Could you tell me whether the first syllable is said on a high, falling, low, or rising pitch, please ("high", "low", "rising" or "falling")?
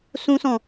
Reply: high